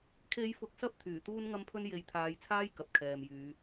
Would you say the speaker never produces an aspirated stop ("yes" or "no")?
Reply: no